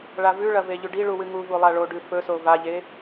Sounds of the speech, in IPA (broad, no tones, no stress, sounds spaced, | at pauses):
ɭ a v ʉ ɭ ɐ v e ʎ ʉ ɖ i ɭ u w ɨ ŋ u v u lˠ a ɭ o ɖ ʉ f ɵ s o v a ʎ e